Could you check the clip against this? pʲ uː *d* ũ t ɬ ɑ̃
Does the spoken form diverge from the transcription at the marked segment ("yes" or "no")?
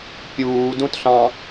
no